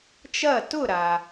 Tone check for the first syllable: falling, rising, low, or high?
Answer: falling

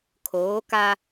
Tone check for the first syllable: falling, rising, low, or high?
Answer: rising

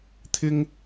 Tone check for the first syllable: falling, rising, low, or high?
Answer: high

